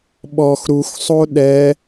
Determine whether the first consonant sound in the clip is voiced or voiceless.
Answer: voiced